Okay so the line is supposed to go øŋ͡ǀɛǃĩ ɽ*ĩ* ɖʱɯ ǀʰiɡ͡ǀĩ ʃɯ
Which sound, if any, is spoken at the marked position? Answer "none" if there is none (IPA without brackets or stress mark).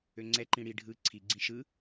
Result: i